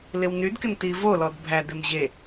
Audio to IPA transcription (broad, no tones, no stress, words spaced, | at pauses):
lɪwnydkɪn tivo lɔdbʱæ dɪmʑe